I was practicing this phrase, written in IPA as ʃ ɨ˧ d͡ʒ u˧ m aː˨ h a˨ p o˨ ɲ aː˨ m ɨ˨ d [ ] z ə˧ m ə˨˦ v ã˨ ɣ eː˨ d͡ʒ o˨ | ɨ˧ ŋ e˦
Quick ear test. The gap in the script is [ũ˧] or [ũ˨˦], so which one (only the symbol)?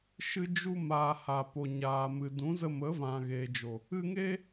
ũ˨˦